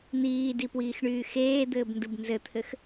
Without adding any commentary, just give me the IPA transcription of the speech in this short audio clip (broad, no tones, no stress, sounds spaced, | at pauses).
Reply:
n̪ iː d i p w iː x ɳ yː x eː d̪ ɘː b n d ɯ b n z ɘ t̪ʰ ɘ x